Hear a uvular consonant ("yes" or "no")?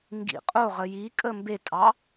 yes